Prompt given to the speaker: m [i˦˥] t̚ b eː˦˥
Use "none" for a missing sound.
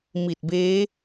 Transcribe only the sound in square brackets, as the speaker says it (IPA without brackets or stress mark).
i˨˩